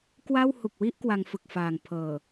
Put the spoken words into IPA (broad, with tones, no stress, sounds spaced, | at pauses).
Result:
k w a˥˩ w h u˨˩ k̚ w i˥˩ ʔ k w a˧ ŋ f ɯ˨˩ k̚ f aː˨˩ ŋ pʰ ɤː˨˩